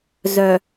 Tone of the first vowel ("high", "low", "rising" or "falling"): low